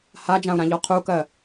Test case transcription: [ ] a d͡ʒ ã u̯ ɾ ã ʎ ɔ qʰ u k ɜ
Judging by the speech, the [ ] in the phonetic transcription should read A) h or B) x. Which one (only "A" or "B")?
A